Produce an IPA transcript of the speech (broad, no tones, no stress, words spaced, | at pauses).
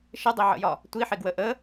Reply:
ʃɪdˤiʕə̰jɒ | tʷiħɪɡwə ʔə